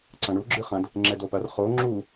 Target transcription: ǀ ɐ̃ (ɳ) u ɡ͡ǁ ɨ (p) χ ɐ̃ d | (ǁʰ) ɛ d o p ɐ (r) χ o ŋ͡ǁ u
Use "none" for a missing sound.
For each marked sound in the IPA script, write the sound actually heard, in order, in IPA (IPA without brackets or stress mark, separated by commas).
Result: ɳ, none, ŋ͡ǁ, r